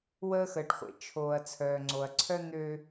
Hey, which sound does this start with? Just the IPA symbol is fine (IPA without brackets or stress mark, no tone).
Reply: w